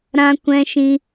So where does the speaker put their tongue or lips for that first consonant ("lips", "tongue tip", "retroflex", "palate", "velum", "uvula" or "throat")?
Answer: tongue tip